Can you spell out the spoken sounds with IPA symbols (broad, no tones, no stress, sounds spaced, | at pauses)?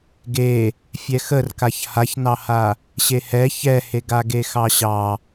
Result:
ɡ e | fʲ ɛ x ə r k a ç h a ç n ɑ h a | ɕ e h ɛ ç ɛ h e ɡ a ɡ e x ɑ ɕ ɑ